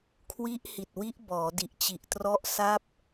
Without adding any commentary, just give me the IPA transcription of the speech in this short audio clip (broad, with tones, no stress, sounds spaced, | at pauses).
kʰ w i˦˥ ʔ h i˨˩ t̚ w i˦˥ ʔ b ɔː˩˦ d i˨˩ ʔ t͡ɕ i˨˩ ʔ t r ɔ˥˩ ʔ s a˥˩ p̚